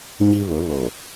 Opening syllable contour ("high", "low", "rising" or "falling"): high